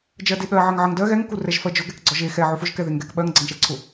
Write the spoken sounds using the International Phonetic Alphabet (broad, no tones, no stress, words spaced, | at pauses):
d͡ʒɜdeɠɜ ʕɜŋʕəŋ dɜ ɣɛŋ kurɛʒfɜd͡ʒʊ ɡɛkɡ͡ǀɔʒe xɛ ʕʊfʊʒ kɛðeŋɡɛk ɓɜŋ ɡ͡ǀəŋʃɜǀʰʊ